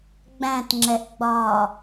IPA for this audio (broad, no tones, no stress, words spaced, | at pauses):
ɡ͡bæ̃tŋ͡ǁɛʔɡ͡bɒː